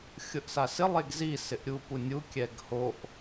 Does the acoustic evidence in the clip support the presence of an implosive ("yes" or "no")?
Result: no